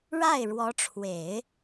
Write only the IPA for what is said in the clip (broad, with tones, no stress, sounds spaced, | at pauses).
ɻ a˥˩ ɪ̯ ɻ w ɔ˧˥ ʈ͡ʂʰ w e˨˩˦ ɪ̯